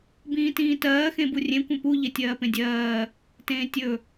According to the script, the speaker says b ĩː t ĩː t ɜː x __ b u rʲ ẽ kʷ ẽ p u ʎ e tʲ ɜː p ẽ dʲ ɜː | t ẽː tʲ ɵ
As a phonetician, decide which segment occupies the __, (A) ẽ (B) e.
A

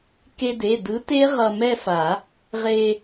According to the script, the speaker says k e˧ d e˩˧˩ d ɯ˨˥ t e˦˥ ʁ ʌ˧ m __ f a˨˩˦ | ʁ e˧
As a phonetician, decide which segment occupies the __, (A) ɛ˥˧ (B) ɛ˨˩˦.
A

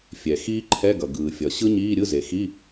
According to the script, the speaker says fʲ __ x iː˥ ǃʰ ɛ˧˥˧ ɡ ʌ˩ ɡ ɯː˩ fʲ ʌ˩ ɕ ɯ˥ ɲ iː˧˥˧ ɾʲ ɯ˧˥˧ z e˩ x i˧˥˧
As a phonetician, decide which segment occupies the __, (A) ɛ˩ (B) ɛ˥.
A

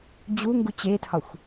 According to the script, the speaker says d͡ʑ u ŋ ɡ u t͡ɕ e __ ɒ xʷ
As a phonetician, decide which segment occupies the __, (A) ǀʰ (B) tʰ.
B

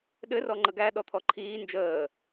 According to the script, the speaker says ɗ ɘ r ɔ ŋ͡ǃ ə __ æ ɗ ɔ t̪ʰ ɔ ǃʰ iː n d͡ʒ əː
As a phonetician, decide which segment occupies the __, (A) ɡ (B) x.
A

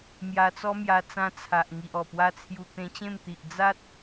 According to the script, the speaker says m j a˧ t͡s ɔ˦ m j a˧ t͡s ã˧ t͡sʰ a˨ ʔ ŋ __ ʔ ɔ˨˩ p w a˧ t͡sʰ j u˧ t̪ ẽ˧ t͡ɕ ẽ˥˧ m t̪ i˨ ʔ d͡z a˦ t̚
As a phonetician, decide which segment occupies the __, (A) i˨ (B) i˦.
A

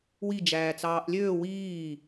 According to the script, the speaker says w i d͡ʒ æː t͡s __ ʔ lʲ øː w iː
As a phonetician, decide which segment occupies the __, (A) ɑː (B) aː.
A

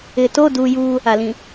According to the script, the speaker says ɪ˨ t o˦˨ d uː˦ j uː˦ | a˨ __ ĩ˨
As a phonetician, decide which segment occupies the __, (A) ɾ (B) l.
B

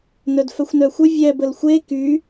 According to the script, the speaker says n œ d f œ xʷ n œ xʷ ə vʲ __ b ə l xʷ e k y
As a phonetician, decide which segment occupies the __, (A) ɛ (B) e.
A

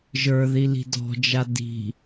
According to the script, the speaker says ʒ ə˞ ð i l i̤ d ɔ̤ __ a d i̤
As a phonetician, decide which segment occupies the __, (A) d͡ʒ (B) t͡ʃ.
A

